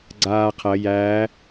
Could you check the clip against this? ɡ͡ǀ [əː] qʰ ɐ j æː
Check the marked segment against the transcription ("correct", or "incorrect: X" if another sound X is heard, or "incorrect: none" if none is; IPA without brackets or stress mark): incorrect: aː